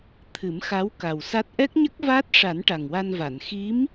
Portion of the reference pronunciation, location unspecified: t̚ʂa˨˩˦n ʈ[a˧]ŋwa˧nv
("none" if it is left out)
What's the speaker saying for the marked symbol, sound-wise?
a˨˩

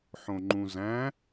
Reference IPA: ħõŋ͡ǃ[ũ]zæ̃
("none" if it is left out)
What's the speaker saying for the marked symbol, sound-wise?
ũ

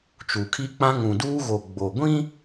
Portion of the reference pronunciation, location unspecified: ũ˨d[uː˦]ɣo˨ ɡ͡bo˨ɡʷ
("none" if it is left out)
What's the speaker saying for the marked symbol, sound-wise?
uː˦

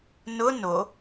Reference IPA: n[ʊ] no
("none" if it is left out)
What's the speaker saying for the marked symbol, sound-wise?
ʊ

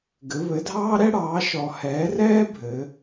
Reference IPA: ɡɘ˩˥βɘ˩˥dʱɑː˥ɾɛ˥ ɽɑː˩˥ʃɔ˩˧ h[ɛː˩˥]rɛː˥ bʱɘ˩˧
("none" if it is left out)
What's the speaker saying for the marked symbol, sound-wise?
ɛː˩˥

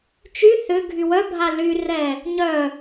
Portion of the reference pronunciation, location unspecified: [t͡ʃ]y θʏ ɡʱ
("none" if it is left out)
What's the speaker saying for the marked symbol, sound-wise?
t͡ʃ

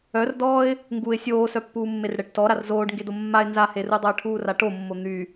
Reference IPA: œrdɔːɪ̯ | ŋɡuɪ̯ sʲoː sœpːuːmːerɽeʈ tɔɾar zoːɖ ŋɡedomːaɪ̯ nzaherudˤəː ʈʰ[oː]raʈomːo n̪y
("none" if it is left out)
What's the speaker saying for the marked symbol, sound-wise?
uː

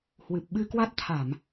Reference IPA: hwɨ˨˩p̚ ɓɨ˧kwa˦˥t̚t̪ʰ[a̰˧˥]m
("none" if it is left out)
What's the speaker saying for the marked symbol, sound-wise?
a˧˩˨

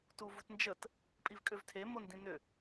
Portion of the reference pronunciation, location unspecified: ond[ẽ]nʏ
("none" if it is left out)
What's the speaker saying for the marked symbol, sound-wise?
ĩ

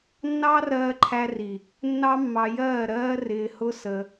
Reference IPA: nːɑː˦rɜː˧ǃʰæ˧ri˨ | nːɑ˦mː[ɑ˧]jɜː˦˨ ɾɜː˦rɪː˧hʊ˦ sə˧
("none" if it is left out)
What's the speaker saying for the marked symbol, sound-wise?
ɑ˧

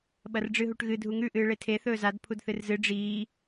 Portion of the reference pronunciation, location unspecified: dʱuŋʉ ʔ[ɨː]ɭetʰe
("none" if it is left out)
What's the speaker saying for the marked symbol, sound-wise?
ɨː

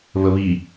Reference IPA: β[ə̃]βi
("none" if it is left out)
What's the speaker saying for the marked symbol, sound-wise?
ə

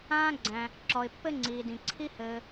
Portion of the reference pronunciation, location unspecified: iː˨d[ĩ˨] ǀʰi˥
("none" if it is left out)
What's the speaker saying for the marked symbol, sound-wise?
ĩ˨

